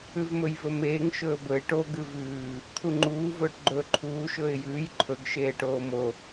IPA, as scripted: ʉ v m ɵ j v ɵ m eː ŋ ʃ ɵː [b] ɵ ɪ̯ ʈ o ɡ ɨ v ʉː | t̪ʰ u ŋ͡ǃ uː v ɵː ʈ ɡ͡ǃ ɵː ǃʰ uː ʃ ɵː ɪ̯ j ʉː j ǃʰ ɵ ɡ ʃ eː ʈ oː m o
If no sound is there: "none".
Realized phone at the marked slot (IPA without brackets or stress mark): b